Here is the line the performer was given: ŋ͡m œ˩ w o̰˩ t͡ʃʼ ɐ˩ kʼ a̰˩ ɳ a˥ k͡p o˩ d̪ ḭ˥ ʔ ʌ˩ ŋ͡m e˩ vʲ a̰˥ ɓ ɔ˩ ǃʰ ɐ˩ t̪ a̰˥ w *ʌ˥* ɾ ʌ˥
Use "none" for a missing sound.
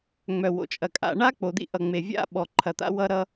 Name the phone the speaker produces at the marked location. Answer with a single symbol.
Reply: ʌ˥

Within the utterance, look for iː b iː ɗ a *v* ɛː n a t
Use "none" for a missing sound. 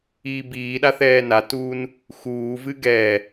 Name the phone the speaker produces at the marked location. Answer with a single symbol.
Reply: θ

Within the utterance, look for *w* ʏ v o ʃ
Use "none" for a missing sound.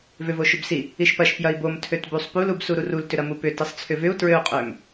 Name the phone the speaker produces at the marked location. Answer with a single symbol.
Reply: v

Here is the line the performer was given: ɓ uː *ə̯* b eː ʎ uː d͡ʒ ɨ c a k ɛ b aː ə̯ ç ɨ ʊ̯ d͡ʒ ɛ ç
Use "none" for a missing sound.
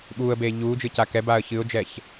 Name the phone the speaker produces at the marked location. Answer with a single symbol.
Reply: ə̯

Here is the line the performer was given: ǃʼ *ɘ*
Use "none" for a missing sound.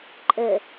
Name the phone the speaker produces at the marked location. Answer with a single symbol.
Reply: ɘ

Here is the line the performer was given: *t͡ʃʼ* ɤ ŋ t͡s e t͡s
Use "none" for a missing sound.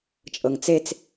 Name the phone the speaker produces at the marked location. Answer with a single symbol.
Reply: t͡ʃʼ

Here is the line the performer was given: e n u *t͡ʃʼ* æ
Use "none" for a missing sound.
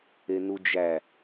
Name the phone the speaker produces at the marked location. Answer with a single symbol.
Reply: d͡ʒ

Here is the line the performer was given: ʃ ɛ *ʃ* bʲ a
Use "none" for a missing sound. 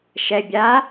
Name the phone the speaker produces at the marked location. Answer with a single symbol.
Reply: none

